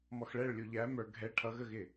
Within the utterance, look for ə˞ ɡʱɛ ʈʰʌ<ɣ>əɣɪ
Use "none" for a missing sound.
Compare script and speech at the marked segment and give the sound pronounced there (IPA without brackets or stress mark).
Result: ɣ